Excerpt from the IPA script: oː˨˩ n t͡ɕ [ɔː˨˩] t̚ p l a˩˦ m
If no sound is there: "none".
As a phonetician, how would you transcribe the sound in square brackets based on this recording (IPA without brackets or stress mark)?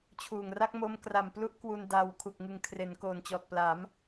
ɔː˨˩